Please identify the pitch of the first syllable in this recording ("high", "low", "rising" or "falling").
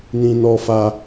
high